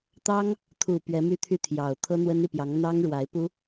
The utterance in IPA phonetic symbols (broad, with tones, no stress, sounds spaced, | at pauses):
t̪ ɑ˥ ŋ | t̪ʰ u˨˩ p ɥ ɛ˧˥ m y˥˧ t̪ʰ y˥˩ t̪ʰ j ɑ˨˩ ʊ̯ t̪ʰ ɤ˥ n̪ w ə˥ n i˨ p j ɑ˧˥ ŋ n̪ ɑ˥ ŋ ɻ w a˧˥ ɪ̯ p u˥